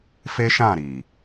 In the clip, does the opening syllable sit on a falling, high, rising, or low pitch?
high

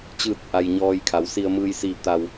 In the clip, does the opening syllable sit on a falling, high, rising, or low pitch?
falling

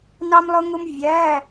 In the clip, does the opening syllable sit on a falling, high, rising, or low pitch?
high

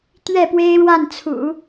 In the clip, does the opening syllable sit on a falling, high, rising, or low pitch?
falling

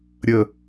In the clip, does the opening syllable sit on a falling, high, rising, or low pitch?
falling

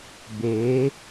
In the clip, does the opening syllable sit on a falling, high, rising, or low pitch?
rising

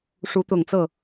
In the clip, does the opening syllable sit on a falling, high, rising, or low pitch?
rising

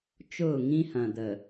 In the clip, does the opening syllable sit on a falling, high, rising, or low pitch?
falling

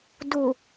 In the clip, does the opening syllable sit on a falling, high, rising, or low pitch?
low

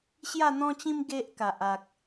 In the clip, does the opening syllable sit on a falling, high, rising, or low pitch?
falling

